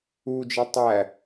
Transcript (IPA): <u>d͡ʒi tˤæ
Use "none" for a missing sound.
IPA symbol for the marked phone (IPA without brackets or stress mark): u